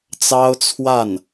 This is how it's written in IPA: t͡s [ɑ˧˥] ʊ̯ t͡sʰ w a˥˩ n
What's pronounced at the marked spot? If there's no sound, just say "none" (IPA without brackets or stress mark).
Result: ɑ˥